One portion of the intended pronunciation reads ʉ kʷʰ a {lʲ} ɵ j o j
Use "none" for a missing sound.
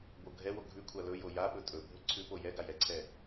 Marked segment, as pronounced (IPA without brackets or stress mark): l